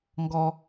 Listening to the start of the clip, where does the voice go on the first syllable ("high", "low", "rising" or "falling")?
high